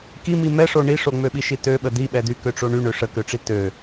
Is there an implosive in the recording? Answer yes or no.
yes